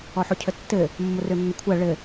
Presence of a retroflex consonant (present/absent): present